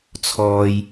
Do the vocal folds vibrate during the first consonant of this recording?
no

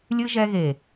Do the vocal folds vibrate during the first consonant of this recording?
yes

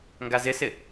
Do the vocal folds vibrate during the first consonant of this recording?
yes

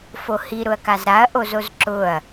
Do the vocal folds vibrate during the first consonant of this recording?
no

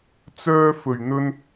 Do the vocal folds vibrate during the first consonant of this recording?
no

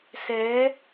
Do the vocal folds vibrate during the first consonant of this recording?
no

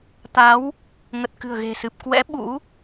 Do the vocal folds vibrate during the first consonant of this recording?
no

